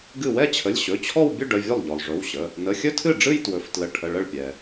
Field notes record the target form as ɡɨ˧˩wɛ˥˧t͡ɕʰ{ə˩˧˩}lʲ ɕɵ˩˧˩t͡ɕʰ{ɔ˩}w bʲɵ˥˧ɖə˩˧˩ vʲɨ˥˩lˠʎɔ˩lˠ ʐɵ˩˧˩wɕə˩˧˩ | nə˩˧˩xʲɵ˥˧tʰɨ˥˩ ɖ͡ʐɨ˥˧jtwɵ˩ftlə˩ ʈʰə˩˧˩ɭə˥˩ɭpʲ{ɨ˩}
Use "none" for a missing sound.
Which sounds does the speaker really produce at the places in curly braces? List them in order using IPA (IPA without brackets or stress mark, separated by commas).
ə˩˧˩, ɔ˥˧, ɛ˩